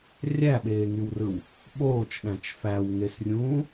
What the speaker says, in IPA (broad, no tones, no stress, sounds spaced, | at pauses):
rʲ æ ɓ eː ŋ y w r ɯ w | ɓ oː t͡ʃ ɗ æ̃ t͡ʃ f æ w ŋ e s rʲ ũː